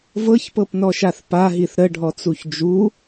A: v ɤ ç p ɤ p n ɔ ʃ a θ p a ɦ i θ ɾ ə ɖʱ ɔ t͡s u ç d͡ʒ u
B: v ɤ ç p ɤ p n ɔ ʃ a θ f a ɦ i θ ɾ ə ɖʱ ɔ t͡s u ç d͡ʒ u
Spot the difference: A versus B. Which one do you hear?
A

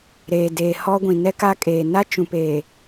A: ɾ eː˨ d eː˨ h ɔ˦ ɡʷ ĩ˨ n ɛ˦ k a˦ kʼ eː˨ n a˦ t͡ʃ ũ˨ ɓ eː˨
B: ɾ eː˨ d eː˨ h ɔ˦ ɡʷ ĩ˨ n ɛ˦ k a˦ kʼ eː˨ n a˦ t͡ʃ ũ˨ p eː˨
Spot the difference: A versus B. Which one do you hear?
B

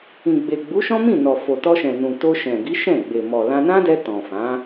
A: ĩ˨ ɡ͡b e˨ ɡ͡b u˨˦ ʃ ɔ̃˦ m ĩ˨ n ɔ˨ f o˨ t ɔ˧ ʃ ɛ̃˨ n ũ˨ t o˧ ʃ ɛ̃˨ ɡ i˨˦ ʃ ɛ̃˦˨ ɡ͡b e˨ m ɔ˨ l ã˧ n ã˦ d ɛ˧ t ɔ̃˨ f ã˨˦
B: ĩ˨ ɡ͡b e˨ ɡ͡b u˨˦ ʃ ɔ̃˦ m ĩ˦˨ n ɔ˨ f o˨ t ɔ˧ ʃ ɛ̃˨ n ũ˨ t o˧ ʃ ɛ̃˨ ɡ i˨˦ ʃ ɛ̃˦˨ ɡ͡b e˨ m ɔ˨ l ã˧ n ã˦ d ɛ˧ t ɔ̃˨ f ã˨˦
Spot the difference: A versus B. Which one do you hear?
B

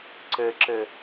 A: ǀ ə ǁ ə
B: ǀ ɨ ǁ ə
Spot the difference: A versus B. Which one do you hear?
A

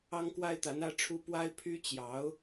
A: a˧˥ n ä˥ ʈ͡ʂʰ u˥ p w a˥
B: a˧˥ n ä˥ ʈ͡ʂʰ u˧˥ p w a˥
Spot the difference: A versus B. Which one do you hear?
A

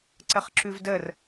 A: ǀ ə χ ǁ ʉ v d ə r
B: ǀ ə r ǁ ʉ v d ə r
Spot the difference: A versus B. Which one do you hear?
A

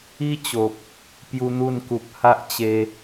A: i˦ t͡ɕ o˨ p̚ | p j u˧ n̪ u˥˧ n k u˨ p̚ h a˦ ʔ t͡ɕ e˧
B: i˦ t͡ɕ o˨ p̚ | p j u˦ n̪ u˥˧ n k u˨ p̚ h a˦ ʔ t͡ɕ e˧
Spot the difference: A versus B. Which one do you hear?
B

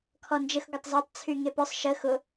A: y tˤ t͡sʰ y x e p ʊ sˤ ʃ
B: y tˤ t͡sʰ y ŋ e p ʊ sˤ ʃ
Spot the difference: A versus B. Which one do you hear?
B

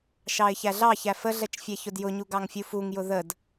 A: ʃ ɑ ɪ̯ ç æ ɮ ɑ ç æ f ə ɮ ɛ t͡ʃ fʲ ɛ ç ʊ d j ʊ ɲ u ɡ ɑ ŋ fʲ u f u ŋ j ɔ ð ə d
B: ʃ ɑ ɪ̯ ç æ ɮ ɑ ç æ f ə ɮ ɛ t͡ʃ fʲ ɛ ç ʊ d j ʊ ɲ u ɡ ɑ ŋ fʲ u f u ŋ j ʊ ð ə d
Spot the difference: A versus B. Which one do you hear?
B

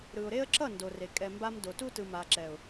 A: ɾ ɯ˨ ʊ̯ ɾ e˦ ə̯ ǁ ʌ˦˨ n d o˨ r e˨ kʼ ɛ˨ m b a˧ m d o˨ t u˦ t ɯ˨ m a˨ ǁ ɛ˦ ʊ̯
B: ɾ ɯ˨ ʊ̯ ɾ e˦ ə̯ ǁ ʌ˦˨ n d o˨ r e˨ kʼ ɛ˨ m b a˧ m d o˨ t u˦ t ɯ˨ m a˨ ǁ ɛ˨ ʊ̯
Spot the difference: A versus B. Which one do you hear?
B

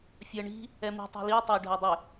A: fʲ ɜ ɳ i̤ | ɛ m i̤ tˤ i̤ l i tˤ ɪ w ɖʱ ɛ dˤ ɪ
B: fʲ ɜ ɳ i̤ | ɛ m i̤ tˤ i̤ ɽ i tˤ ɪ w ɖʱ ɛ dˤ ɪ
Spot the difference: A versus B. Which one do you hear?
A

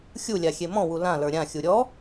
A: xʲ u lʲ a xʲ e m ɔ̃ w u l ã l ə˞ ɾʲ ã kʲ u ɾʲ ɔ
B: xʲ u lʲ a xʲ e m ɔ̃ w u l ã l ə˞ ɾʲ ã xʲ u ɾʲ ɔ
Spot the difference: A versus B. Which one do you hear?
B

